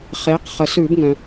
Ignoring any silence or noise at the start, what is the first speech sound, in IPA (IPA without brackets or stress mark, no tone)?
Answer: χ